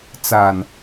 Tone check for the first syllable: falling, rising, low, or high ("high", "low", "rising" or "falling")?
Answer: low